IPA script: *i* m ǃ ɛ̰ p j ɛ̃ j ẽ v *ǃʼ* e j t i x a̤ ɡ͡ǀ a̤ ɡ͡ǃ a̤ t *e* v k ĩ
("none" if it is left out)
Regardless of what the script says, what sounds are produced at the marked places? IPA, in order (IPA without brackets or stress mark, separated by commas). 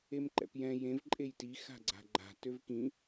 e, ǃʼ, ø